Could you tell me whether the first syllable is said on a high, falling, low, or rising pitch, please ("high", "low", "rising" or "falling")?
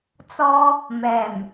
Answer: high